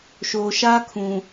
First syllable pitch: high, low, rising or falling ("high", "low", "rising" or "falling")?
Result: low